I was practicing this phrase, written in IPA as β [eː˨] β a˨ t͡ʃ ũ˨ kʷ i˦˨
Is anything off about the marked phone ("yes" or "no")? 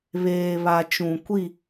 no